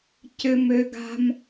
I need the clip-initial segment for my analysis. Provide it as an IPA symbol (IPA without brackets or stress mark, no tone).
c